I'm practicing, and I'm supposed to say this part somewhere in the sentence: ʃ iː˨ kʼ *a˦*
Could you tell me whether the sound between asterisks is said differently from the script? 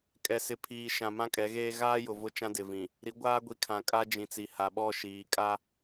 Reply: no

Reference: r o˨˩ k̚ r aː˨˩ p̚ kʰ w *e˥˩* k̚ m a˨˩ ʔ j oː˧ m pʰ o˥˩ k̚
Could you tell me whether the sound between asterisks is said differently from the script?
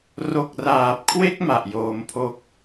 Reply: no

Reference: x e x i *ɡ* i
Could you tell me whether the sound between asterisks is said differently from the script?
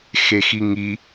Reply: yes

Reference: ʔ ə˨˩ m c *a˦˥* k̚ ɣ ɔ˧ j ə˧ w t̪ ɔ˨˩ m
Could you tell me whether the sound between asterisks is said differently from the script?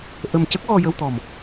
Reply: yes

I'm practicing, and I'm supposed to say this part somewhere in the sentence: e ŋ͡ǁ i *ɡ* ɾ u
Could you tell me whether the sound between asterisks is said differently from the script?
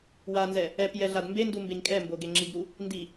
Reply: no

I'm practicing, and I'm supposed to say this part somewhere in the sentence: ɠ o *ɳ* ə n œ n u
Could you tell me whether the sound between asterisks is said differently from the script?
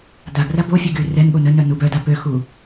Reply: yes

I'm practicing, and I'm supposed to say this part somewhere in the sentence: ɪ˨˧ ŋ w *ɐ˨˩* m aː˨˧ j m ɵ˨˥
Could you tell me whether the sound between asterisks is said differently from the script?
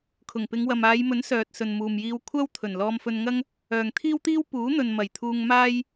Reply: yes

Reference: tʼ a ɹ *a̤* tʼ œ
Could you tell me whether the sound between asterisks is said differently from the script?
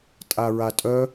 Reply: yes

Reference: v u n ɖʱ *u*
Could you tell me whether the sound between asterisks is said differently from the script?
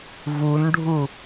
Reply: no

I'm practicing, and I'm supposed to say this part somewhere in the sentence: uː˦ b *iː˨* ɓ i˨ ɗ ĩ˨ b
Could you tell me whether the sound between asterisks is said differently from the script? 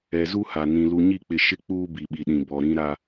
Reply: yes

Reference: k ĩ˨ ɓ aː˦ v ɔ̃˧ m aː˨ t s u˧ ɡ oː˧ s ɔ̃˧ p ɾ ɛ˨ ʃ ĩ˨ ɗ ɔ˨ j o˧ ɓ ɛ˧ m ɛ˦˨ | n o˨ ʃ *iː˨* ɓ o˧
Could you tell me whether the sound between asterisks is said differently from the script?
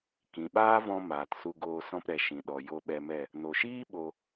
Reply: yes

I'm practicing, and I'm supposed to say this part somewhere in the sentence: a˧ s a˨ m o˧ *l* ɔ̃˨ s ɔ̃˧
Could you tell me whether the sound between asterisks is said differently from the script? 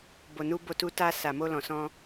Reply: no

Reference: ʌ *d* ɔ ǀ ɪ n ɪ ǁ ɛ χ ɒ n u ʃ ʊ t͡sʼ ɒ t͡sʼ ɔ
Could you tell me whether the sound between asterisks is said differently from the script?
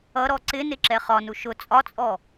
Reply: yes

